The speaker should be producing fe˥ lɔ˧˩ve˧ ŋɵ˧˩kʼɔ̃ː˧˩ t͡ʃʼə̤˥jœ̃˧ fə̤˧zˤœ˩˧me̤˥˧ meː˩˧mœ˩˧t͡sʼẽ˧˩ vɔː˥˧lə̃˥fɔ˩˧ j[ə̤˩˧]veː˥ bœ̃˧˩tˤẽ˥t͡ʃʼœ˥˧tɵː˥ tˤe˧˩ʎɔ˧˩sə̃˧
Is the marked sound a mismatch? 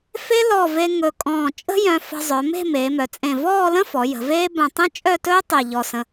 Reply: no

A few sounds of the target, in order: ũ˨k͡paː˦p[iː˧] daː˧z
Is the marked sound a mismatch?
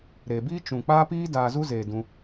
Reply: yes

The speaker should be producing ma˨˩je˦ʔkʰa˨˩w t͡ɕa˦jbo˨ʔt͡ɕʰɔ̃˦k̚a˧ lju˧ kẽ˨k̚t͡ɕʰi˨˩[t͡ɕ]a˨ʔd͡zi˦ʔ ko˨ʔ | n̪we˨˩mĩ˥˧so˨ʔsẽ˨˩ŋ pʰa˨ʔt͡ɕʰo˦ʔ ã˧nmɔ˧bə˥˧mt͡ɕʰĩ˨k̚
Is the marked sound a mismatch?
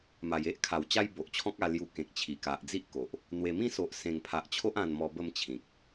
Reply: yes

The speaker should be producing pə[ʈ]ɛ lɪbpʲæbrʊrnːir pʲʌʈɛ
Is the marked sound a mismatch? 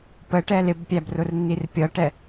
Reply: no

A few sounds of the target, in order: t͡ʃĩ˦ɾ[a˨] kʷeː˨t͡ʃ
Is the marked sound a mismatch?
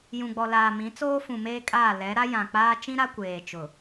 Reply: yes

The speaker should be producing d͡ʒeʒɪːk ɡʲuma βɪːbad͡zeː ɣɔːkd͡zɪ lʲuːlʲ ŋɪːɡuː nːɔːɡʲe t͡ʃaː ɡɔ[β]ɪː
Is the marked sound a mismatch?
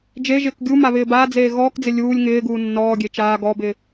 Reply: yes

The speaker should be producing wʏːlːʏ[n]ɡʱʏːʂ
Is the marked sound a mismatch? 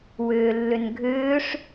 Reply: no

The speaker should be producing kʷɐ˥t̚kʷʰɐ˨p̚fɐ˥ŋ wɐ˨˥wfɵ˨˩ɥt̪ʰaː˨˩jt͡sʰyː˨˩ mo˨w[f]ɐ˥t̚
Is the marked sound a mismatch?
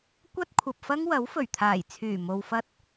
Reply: no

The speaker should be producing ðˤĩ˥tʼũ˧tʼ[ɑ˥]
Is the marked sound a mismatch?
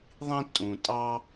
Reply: no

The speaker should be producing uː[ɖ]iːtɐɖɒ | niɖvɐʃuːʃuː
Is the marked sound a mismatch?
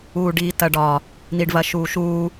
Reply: no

